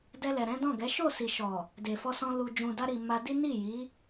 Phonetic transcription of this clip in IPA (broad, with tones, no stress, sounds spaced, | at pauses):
d ɛ˧ l ɛ˨ ɾ ɛ̃˨˦ d ɔ̃˦˨ ɡ ɛ˨˦ ʃ o˦˨ s i˨ ʃ ɔ˨ | d e˨ f ɔ˧ s ɔ̃˧ l u˨ d͡ʒ ũ˨ d a˧ ɾ i˨ m a˧ d i˦ n i˦˨ j i˨˦